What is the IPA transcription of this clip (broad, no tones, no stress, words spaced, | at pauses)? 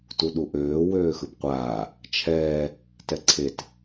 tuɗuʔøː wøːxɯpqʷaː | t͡ʃʰɛː | tɛǀʰet